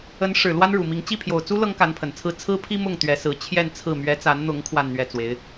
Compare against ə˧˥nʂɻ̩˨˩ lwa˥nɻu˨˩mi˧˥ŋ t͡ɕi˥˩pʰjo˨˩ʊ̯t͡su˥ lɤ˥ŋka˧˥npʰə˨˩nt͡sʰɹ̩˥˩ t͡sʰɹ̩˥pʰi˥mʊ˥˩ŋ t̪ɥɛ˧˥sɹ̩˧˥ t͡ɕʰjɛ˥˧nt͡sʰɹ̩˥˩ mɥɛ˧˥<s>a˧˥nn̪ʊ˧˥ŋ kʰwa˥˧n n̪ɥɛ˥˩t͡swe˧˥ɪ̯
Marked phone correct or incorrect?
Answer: incorrect: t͡s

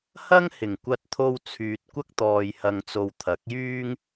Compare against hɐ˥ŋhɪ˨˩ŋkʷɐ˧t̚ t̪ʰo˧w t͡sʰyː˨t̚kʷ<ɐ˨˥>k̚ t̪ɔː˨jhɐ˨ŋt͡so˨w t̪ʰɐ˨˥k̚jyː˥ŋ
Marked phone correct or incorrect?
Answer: incorrect: ɐ˥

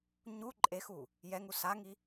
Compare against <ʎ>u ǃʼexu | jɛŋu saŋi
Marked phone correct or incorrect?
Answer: incorrect: ɲ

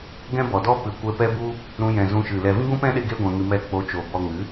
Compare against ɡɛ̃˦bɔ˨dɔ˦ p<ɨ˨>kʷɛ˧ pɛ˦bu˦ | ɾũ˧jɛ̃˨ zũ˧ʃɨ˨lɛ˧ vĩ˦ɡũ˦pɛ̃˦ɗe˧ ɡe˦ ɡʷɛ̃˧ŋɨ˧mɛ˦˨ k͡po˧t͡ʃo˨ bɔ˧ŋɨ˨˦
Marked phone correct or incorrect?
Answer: correct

